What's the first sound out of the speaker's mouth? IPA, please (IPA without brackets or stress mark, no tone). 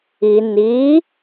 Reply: i